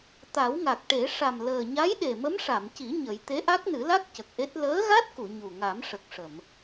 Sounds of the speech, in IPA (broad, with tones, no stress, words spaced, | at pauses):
t̪a˨˩˦wŋa˨˩k̚ʈe˨˩˦ ʂa˨˩mləː˨˩ɲa˧˥jɗe˨˩ mə˧˥mʂa˨˩˨mci˨˩˦ ɲə˨˩˦j t̪e˧˥ʔa˦˥k̚nɨ˨˩˦la˦˥k̚ cə˨˩k̚ʔe˦˥t̚ ləː˧˥ɣa˦˥t̚ku˨˩˨ ɲu˨˩ŋa˨˩˦m ʂə˨˩k̚ʂə˨˩˨m